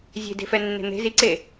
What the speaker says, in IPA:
zʲ e̤ d e̤ f ɛ nː e̤ n̪ e̤ z i ǀ e

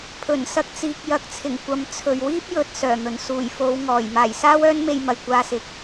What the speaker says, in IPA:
pʰ ɵ˨˩ n s ɐ˧ k̚ t͡s iː˨ k̚ j ɐ˨ k̚ t͡sʰ ɪ˨˩ ŋ kʷ ɐ˨˧ m t͡sʰ ɵ˨ ɥ w iː˥ p̚ j ɵ˨ t̚ s œː˨˩ n̪ ɵ˨˩ n s uː˨˩ j f o˨˧ w ŋ ɔː˨˩ j m aː˨˩ j s aː˥ w œː˥ n m e˧ j m ɐ˨˩ j kʷ aː˧ s ɪ˨ k̚

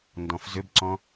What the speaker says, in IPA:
n d ɔ̃ f z ʏ b ǀ ɔ̃

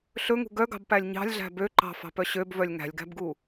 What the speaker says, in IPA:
ɬ ɵ ŋ ṳ ɡ œ ɡ ɑ̤ b p æ lʲ ɲ ɑ̤ lʲ ɮ æ̤ b ø ǃ ɑ̤ f ɑ̤ p œ ɕ ø b v œ lʲ ŋ æ̤ lʲ ɡ æ̤ b ɡ u

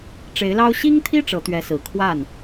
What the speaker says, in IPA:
ʈ͡ʂ e˧˥ ɪ̯ l ɑ˥ ʊ̯ ɕ i˥ ŋ t̪ʰ i˥ ʈ͡ʂ ɤ˧˥ t̪ ɥ ɛ˧˥ s ɹ̩˨˩ kʰ w a˥˩ n

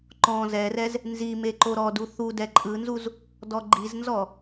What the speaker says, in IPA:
ǃ ɔ̃ z ɛ r ɛ z | n z i m e ǃ o ɾ ɔ d u θ u d ɛ ǃʼ ɯ n z u z | d ɔ ɡ͡ǃ i z n z ɔ

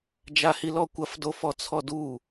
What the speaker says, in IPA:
d͡ʒ a h i l ɔ kʷ ɐ f d o f ɔ t͡sʰ ɔ d u

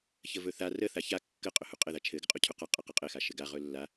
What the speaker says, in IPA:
ç ə v ɵ θ a r ə θ a ç a kː ə qʼ ɵ h u qʼ ɘ ð a t͡ʃʰ ɘ ɡ ə qʼ u cʰ u q a qʼ ə q ɘ qʼ ɘ x a ʃ ɘ ɡ a ʁ ɵ lː a

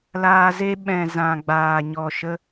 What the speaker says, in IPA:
l aː˧ z e˦ ɓ ɛ̃˨ z ã˨ ɡ͡b aː˨ ɲ ɔ˨ ʃ ə˧

